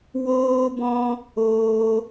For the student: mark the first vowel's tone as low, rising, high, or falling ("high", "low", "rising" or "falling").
high